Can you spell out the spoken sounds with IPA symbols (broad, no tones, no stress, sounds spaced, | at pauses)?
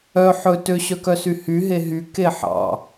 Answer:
œ ħ ɵ t ø ɕ œ k œ s y h y ɦ e ɦ y k e ħ ɑ̰